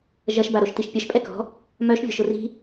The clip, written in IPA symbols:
ʒ ɐ ʃ b a ɾ o ʃ t i ʃ pʲ ɐ ʃ pʼ ɛ k ɔ̤ | m œ ʃ vʲ ɔ̤ ʃ ʊ r i̤

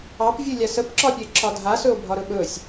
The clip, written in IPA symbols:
ɑ p vʲ u lʲ a s ə p ǁ ɒ pʲ ə e̯ ǁʰ ɒ dʱ a s ɵ o̯ bʱ ɒ ɾ ɵ ɓ ɵ sʲ

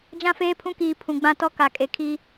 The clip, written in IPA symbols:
d͡ʒ ã˦ f eː˦ pʰ ũ˦ k iː˨ pʰ ũ˨ ɡ͡b ã˦ t ɔ˦ k a˨ kʼ e˨ kʰ i˦

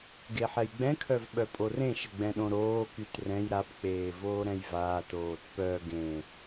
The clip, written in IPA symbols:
ɡ e ħ ɛ j ɡ͡b ɛ̃ kʰ œ v ɓ œ pʼ o r ẽ ʃ ə ɡ͡b ɛ̃ ɗ õ ɾ oː k y t r ɛ̃ j ɾ a p k͡p eː v oː ɾ ɛ̃ j v aː t oː t p œ ɡ ẽ

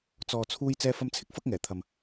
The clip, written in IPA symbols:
t͡s ɔː˨ t͡sʰ uː˧ j t͡s ɛː˧ f ɐ˧ m t͡sʰ ɪ˥ k̚ f ɐ˥ k̚ ŋ ɛː˨˩ t̪ʰ ɐ˨ m

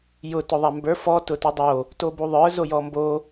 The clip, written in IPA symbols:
j ʊ t ʊ ðˤ a m b ə˞ f ɔ t ʊ t u dˤ o | t o b u ðˤ ə˞ z o j ɔ m b o

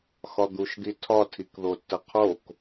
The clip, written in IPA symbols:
x ɒ d̪ u ʃ d̪ i tʰ ɒ tʰ i k ð o tː ə qʰ o k

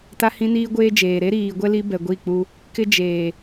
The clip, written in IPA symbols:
t a˦ h ĩ˦ n iː˦ ɡʷ eː˦ d͡ʒ eː˨ ɾ e˦ ɾ iː˨ ɡʷ ɛ˦ l i˦ b ɛ˨ ɡʷ i˦˨ k͡p u˦ | k ɪ˦ d͡ʒ eː˨

